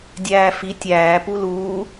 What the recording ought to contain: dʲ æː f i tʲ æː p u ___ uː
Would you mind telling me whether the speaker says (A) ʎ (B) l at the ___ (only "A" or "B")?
B